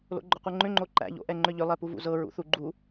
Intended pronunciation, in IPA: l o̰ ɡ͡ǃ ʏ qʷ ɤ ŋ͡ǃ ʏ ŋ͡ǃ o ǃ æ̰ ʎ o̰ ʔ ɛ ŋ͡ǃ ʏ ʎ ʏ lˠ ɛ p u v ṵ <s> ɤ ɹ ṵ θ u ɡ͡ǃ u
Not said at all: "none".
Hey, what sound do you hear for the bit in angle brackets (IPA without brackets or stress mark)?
z